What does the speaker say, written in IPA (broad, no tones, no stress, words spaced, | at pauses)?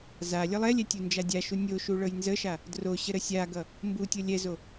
za lʲʌlˠɛlʲɛ tʲund͡ʒadʲaʃu nʲoʃu ɭɤjnzəʃa | droɕə ɾəsʲaɡʌ | mbutʲɤ lʲɛzo